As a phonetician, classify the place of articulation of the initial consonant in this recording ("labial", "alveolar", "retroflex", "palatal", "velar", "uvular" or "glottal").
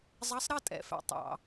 alveolar